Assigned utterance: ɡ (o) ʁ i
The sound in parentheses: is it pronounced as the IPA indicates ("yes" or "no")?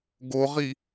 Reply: yes